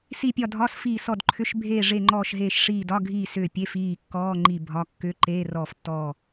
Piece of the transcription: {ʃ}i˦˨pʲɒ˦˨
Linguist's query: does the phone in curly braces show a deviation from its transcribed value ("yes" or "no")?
yes